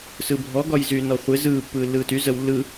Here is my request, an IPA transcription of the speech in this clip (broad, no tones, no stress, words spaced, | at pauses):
sɯbʱɔ ɡɒjzyːnɔχʷe zɯː pːɯːlːɯːty zəw lːɯ